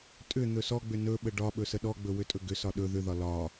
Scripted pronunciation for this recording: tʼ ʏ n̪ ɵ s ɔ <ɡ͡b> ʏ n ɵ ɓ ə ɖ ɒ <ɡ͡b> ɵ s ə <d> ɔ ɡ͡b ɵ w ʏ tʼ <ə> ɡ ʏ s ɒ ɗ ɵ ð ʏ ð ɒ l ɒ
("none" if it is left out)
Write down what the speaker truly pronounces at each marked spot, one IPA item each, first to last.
ɡ͡b, ɓ, ɗ, ɵ

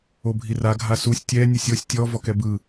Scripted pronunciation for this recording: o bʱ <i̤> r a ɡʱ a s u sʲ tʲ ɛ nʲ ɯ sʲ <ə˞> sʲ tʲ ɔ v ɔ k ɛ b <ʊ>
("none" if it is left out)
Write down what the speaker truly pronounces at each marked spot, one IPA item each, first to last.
i, ɤ, ɯ

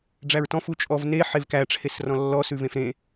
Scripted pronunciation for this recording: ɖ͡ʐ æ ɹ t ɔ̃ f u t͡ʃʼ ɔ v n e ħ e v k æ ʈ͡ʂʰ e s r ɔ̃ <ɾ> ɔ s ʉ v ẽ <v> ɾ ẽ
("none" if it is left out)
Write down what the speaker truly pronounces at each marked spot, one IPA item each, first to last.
lː, f

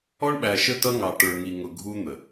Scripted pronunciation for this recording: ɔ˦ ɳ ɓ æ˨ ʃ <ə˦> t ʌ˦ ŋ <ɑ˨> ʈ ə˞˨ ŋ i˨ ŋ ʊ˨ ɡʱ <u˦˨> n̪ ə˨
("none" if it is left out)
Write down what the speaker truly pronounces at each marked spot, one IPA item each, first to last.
ə˦, ɑ˨, u˦

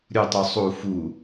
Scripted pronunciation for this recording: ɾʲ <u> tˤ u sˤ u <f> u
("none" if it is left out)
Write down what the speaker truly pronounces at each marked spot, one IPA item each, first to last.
u, f

